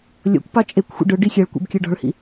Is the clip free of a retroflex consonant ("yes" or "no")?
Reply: no